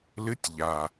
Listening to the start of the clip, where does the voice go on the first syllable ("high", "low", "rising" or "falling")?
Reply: rising